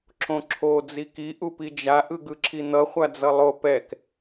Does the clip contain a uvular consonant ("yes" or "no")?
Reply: yes